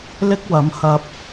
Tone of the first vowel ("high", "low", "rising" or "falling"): high